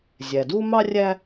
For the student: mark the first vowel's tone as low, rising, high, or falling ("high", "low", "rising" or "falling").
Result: low